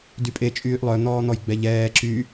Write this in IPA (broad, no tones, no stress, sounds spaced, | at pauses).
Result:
d y pʼ e t͡ʃʼ yː ʔ lˠ œ n̪ ɔː n̪ ɔ j ɡ͡b ɛ ʎ ɛː ǁ y